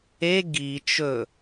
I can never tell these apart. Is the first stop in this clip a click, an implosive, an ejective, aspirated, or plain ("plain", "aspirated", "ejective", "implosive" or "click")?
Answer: plain